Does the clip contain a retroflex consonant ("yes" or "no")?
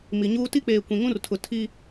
no